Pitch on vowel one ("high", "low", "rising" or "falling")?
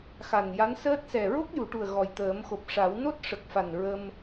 low